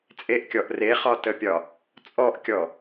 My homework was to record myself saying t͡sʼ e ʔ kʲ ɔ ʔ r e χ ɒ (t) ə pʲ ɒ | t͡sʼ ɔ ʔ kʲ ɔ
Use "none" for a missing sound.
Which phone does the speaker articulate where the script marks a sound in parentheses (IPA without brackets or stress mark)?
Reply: t